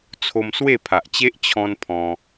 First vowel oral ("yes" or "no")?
yes